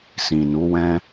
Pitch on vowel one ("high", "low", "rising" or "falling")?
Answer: low